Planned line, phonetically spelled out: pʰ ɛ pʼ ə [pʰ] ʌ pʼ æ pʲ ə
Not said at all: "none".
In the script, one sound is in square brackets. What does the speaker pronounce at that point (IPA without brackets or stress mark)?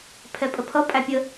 pʰ